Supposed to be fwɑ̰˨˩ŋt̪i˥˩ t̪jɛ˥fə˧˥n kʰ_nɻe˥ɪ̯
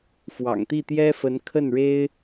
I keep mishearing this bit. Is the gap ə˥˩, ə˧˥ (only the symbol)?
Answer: ə˥˩